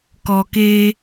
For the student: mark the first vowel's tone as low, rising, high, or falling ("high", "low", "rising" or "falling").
low